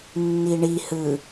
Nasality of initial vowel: oral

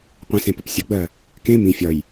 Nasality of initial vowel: nasal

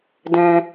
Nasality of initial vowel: nasal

